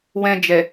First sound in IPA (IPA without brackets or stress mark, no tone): w